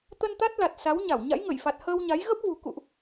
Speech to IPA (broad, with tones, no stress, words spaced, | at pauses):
t̪ə˧nt̪a˦˥t̚la˨˩t̚ sa˨˦wɲa˧˩w ɲa̰˧˥jŋə˧˩jfa˨˩t̚ həː˧wɲa˨˦j ɣə˦˥p̚vṳ˨˩ kṵ˧˨ʔ